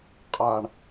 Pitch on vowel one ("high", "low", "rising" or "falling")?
low